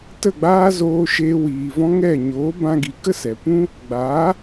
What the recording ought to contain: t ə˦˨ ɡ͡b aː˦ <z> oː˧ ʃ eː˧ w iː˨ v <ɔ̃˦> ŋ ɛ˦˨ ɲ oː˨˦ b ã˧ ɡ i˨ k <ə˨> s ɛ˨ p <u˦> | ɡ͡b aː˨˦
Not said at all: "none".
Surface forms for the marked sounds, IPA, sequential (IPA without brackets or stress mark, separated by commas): z, ɔ̃˦, ə˦, ũ˦